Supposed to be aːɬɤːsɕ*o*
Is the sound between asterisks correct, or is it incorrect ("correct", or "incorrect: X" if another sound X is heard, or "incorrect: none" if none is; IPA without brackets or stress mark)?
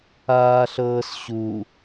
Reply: incorrect: u